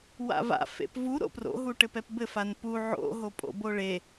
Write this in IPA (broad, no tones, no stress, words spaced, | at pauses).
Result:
wa̰va̰ fḛpvu ɾo̰pro̰ ɦuʈɘpɛpbɘ fanpu ʕo̰ ɦopʼo̰boɭe